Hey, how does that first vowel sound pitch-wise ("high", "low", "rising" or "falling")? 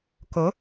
rising